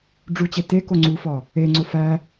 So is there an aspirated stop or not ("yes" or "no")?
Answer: no